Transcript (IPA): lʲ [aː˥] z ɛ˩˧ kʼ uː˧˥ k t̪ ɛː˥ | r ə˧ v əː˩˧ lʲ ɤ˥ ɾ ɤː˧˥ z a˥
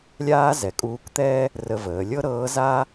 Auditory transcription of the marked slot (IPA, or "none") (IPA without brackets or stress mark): aː˥